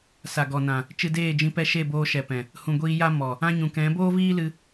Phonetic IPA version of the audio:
s a˨ ɡ ɔ˨ n ã˨ | t͡ʃ ɨ˧ d eː˦˨ d͡ʒ ĩ˧ p ɛ˦ ʃ e˦˨ b oː˧ ʃ ɛ˨ p ɛ̃˨ | h ũ˨ ɡʷ iː˧ j a˦ m ɔ˨ | ã˧ ɲ ũ˨ k ɛ̃˨˦ b oː˦ v iː˦ l ɨ˧

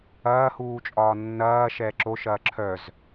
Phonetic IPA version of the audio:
ɐː h uː t͡ʃʼ ɒː nː ɐː ʃ ɛː ǁ o ʃ ɐː ǁʰ œ z

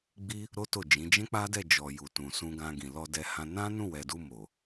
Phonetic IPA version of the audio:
ɡ͡b i˦ | ɾ o˦ t o˦˨ d͡ʒ ĩ˨˦ d͡ʒ ɛ̃˦ k͡p a˦ d ɛ˦˨ d͡ʒ ɔ˨ j u˨ t ũ˨ s ũ˧ ɡ ã˧ ɡ ĩ˨ l ɔ˧ d ɛ˧ h ã˧ n ã˦ n ũ˦˨ w ɛ˨ d u˧ m o˨

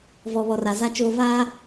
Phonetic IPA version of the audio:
v ɔ˨ β ɔ˨ r a˨ z a˨ t͡ʃ oː˨ v aː˦

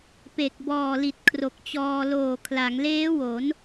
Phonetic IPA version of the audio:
p e˨˩ k̚ b ɔː˨˩ l i˨˩ t̚ kʰ r o˨˩ k̚ t͡ɕ ɔː˧ l oː˨˩ kʰ l a˩˦ ŋ l eː˦˥ w o˩˦ n

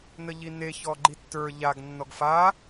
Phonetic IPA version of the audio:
n ə ʎ i n e ç ɔ ɡ͡ǃ i tː ə˞ ʎ a ɡ nː ɔ ɡ f a

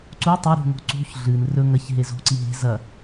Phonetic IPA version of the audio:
ǀ u tˤ o ɾ ṳ ŋ o̤ ǀ ṳ ç ɮ ɨ n r ɵ ŋ ɐ ç ɦ e z o̤ ǀ i ɦ e̤ z ɐ

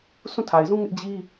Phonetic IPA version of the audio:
sʰ ũ˦˨ tʰ a˨ ɪ̯ z ũ˦ ŋ ɪ˦ ʔ d͡ʑ i˦

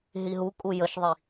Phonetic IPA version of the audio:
ɦ i ɦ u kʼ u j ə ʃ ðˤ i

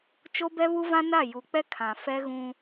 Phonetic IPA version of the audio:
t͡ʃ o˦ b ɛ˦ β u˦ v ã˦ n a˦˨ j u˨ k͡p ɛ˦ kʰ ã˨ f ɛ˦ ɣ ũ˦

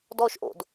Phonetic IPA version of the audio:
d ɔː ʃ ʔ o̰ d

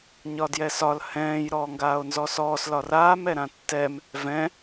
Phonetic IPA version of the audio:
ɲ ɒ d j ɛ s ɒ l h ɛ̃ː j ɾ ɔː ŋ ɡ aː o̯ n z ɔ s ɔː s l ɒ r aː m ɛ ɾ ã tː ɛ m | v ɛ̃

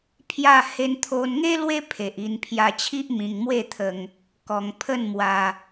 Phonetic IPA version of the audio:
pʰ j a˥˧ h e˦ n t̪ʰ o˦ n ŋ e˦ l w e˦ pʰ e˨ ʔ i˧ n pʰ j a˧ t͡ɕʰ i˦ ʔ m ĩ˧ ŋ m w e˥˧ t̪ʰ ə˧ ŋ | k ɔ˧ ŋ pʰ ə˥˧ n m w a˧

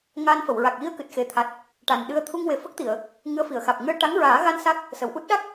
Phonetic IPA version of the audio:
ŋ aː˧ n f ə˨˩˨ w ɹ a˨˩ k̚ j i˧ ə̯ k ɨ˨˩ t̚ x e˨˩ t̪ʰ a˨˩ t̚ | ʈ a˨˩ n ɗ ɨ˧ ə̯ t̪ʰ u˧ ŋ w e˨˩ f ə˦˥ k̚ t̪ i˨˩˨ ə̯ | ŋ ɨ˧˥ ə̯ f i˨˩˨ ə̯ x aː˨˩ p̚ ŋ ɨ˧ ə̯ ʈ a˧˥ ŋ ɹ aː˨˩˦ ɣ a˧ n s a˦˥ k̚ | s ə˨˩˨ w ʔ u˦˥ t̚ ɗ a˦˥ k̚

